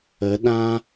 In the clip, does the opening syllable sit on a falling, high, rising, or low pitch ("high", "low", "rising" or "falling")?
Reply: rising